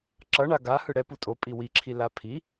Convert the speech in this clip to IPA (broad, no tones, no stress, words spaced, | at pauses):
ǁʌɳa ɡa hɯɽɛ putʼo pʼiwiǁʰi lapʰi